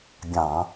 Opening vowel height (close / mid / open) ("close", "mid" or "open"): open